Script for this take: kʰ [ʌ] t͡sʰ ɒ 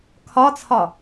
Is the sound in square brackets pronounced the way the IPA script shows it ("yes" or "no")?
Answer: no